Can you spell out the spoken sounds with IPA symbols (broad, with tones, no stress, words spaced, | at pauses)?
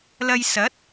lɐ˧jsɐ˨˥t̚